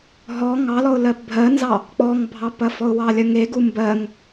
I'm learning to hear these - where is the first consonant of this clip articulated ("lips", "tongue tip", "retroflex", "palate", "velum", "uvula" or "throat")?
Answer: throat